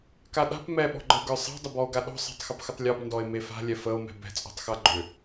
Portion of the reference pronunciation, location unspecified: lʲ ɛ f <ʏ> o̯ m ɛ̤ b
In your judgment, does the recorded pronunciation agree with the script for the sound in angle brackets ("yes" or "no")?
no